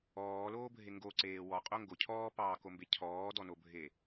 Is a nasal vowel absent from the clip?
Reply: yes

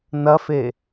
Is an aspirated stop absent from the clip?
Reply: yes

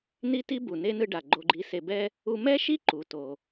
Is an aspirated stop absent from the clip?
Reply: yes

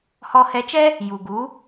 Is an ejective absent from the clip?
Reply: yes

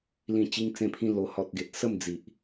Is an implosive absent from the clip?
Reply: yes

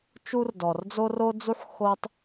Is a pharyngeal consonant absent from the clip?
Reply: no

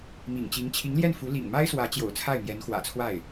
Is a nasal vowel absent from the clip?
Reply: yes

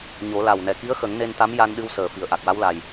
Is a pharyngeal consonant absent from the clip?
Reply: yes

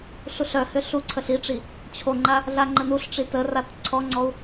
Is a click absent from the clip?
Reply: no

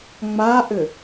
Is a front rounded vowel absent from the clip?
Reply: no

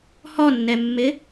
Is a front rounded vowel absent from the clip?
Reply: yes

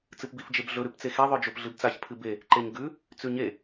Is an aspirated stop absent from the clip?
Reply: no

